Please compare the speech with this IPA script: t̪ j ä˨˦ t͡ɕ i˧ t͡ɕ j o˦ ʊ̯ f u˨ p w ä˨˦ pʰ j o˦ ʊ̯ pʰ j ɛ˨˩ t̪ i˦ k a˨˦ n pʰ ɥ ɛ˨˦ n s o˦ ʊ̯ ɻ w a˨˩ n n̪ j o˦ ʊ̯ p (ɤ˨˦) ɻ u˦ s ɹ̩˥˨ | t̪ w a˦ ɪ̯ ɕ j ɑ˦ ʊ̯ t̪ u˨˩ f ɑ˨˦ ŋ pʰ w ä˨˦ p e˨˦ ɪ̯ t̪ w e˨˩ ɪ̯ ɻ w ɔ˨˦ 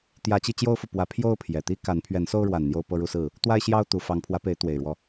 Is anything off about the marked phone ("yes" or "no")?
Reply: yes